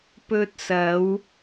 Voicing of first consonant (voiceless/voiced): voiceless